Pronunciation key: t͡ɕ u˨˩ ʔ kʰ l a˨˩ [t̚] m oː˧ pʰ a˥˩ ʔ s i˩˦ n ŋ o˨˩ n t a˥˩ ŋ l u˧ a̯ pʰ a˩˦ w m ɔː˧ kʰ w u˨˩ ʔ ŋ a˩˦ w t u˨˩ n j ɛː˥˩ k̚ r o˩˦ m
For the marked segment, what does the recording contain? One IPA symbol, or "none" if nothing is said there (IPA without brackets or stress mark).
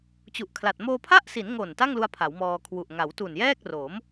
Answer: t̚